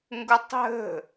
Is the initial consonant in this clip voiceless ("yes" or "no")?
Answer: no